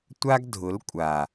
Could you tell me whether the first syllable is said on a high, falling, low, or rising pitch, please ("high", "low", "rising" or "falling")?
high